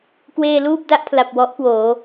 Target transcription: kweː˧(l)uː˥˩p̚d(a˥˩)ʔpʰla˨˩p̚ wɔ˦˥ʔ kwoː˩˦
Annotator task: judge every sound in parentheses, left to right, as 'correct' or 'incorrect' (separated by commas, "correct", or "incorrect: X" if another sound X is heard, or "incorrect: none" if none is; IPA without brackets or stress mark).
correct, incorrect: a˦˥